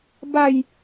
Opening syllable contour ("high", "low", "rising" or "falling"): falling